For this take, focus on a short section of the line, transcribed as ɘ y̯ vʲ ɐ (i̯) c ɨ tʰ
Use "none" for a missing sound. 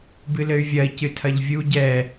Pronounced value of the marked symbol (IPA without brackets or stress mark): i̯